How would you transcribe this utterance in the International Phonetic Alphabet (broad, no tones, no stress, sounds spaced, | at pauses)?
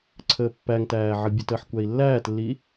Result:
ǀʰ əː pː æ ŋ t æː ʕ ʌ bʲ ə t əː ħ kʷ æ i̯ lː æː t lː i